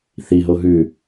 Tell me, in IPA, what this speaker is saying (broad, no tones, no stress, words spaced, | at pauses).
θiɦo ɦʉ